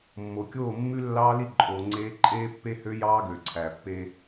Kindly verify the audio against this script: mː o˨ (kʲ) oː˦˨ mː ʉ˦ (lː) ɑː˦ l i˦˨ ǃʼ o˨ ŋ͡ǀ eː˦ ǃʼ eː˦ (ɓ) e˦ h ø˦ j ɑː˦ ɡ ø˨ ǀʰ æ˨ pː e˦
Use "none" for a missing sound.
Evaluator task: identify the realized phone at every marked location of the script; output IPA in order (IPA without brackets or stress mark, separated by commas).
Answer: kʲ, lː, pː